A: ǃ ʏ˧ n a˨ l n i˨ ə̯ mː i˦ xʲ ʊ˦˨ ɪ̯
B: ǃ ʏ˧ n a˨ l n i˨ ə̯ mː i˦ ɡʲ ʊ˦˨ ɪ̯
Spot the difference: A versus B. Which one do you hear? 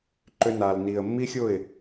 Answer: A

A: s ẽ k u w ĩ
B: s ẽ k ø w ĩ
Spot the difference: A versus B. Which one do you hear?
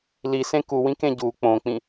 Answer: A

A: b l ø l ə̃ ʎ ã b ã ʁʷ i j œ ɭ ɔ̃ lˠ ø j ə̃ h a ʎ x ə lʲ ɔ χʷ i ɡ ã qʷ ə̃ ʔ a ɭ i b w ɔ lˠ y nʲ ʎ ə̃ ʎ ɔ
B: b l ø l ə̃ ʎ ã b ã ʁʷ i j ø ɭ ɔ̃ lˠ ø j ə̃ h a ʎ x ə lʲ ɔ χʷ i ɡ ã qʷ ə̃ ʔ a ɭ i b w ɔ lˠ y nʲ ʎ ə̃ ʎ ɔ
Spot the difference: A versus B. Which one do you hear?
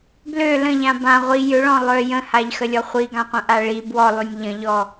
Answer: B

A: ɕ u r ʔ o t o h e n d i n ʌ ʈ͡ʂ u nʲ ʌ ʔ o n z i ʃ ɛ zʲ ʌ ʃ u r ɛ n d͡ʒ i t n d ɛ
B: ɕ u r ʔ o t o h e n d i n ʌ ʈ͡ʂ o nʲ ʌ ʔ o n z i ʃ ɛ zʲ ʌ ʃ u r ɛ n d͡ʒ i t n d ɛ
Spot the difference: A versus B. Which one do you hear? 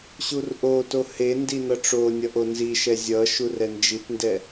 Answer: B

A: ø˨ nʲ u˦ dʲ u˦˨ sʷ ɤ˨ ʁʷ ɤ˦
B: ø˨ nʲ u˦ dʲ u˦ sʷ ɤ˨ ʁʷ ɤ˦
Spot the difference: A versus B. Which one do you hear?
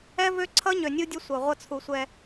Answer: B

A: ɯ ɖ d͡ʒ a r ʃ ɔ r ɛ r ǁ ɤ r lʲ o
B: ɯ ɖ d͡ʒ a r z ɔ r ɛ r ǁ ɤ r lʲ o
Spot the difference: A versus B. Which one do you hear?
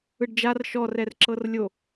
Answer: A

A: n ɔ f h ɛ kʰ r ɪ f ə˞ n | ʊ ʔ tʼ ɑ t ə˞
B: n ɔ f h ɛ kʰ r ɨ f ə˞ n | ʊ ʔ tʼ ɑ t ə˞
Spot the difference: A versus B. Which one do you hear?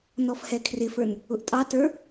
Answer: A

